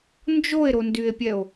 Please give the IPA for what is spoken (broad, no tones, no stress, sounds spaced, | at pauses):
n d͡ʒ o e̯ ɾ o n d y e̯ pʲ ɛ o̯